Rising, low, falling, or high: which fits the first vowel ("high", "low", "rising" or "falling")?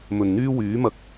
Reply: low